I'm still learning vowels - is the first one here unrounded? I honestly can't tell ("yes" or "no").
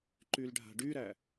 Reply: no